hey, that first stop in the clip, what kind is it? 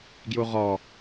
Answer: plain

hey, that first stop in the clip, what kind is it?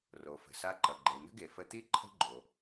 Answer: click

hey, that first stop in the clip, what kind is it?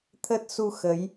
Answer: aspirated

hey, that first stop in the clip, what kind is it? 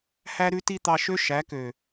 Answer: plain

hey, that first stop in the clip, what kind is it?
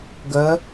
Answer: plain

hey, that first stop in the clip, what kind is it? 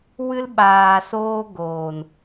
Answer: implosive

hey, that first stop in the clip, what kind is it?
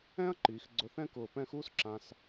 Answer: click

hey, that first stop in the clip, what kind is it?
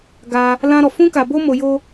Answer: plain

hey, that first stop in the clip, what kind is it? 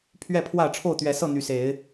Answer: aspirated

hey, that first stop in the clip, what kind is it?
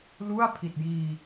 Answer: aspirated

